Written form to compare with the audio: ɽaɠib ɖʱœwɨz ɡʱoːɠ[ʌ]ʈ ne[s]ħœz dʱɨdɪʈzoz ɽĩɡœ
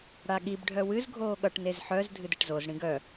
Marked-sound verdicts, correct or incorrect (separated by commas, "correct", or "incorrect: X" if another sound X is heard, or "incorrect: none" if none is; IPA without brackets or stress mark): correct, incorrect: z